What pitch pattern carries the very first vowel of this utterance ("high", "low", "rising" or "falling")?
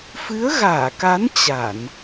rising